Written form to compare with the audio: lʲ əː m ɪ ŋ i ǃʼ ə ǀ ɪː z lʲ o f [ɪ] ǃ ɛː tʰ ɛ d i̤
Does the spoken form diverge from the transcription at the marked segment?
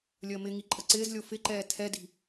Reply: no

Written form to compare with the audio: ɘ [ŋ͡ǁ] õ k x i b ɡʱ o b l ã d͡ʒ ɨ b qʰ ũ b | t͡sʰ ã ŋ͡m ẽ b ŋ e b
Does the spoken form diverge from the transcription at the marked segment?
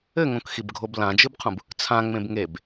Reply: yes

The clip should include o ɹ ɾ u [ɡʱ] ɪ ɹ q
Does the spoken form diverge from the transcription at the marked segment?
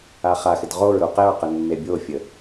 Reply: yes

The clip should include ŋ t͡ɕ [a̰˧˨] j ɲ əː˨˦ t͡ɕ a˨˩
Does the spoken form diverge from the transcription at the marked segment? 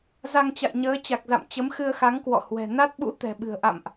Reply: no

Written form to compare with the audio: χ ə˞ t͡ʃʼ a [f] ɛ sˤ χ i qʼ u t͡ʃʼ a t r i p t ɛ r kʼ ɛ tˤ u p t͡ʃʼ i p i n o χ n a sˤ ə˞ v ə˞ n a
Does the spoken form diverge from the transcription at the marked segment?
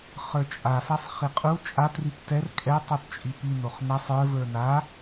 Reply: no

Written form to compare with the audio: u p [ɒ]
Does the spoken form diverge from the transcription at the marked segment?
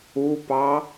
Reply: yes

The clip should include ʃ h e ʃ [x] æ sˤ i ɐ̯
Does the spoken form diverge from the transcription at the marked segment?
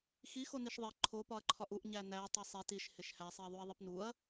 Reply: yes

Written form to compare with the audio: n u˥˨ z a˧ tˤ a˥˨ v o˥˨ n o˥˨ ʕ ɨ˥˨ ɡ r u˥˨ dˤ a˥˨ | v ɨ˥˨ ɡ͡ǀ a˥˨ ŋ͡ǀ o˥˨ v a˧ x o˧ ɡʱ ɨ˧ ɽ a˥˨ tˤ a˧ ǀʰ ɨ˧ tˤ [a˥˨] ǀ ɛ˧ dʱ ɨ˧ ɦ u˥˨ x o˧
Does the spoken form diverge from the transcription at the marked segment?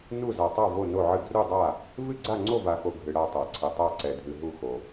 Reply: no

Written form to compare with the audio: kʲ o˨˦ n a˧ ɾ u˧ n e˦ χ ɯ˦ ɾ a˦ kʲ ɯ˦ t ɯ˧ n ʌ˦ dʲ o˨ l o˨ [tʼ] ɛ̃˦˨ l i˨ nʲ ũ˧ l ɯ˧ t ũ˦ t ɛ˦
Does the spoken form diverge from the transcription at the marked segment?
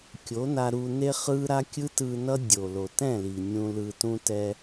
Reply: yes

